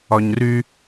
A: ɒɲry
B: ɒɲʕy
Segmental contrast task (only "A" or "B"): A